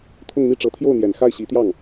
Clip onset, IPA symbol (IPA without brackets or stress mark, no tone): t̪ʰ